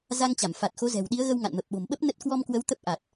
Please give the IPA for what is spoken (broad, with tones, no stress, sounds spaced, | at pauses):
z a˧ ŋ t͡ɕ a˧˩ m f a˨˩ t̚ x o˨˦ z ɛ̤˨˩ w ɗ i˨˦ ə̯ ɣ ə˧ w ŋ a̰˧˨ n m ə˨˩ p̚ ɓ o̤˨˩ m ɓ ə˦˥ p̚ n ə˦˥ t̚ k w ɔ˧ m k w ə˨˦ w t̪ ə˦˥ p̚ ʔ a˨˩ t̚